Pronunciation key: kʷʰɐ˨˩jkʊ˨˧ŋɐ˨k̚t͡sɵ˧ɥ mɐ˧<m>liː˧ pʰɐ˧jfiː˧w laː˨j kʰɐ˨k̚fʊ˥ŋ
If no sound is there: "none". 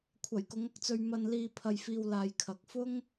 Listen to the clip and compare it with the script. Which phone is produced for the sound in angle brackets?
n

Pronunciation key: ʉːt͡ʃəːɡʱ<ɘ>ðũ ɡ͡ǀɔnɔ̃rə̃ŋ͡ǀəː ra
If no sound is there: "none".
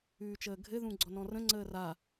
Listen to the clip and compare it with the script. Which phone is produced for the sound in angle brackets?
ɘ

